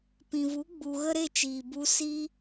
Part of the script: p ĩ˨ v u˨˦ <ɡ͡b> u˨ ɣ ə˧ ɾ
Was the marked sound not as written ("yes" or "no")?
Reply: no